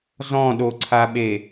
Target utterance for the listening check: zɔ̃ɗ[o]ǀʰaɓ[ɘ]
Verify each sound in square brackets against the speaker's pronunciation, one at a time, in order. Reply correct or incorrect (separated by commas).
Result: correct, incorrect